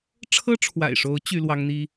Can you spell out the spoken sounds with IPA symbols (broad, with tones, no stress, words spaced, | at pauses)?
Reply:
ʈ͡ʂʰɤ˥ʈ͡ʂʰwa̰˨˩ɪ̯ʂo˧˥ʊ̯ t͡ɕy˥lwɑ˥ŋn̪i˥